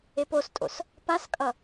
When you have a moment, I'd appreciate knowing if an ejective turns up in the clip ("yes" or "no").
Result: yes